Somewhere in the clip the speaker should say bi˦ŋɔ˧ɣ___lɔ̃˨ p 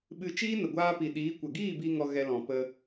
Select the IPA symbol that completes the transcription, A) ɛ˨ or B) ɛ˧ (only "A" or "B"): B